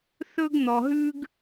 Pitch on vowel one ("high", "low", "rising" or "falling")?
high